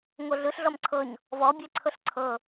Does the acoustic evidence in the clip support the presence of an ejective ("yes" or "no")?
no